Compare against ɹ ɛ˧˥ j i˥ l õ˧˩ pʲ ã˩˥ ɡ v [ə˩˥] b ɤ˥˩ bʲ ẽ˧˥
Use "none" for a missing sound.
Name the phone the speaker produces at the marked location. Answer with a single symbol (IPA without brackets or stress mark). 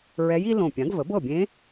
ə˩˥